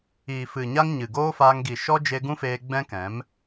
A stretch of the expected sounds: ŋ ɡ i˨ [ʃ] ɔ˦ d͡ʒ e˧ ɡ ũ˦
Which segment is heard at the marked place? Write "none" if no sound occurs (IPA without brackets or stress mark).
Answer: ʃ